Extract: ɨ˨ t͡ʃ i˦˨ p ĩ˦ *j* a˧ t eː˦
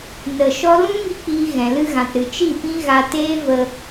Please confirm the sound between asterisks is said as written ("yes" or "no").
no